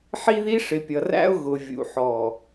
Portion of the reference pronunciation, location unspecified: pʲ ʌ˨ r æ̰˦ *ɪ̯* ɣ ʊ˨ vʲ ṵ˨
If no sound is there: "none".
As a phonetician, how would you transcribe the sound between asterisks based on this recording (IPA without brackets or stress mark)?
ʊ̯